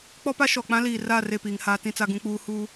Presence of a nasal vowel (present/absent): present